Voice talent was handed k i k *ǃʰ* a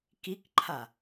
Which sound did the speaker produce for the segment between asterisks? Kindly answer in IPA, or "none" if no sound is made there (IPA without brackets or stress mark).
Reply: ǃʰ